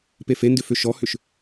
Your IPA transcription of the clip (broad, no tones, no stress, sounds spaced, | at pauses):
p e f e n d ʏ f ʏ ʃ ɔ h ʏ ʃ